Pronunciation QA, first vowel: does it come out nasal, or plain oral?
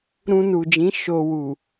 nasal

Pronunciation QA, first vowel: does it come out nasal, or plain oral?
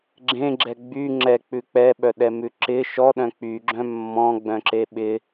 nasal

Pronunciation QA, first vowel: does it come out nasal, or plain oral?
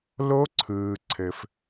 oral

